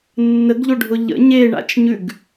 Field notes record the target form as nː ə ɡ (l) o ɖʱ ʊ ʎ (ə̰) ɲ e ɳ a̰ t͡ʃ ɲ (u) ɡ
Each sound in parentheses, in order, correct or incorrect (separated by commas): incorrect, correct, incorrect